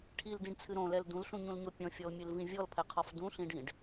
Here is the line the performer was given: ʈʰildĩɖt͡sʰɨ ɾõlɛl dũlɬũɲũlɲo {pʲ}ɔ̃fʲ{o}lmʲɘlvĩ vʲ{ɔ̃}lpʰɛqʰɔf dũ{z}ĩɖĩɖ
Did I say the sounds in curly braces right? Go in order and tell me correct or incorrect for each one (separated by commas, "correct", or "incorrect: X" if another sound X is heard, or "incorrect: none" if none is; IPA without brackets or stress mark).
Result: correct, incorrect: ɔ, incorrect: ɔ, incorrect: ɬ